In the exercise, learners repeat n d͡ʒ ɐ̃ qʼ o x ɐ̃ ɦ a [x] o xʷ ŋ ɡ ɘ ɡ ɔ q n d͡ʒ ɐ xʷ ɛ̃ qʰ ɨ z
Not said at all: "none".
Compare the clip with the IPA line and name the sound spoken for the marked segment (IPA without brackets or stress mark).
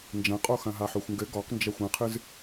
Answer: ħ